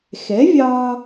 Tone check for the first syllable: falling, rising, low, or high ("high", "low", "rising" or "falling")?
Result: rising